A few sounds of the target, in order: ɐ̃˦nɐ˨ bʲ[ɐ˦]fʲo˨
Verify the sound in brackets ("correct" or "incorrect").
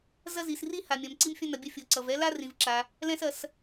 correct